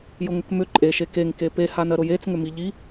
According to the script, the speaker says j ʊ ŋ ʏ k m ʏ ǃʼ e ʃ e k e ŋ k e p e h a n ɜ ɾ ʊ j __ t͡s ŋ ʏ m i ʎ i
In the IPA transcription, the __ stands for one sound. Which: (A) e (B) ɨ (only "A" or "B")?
A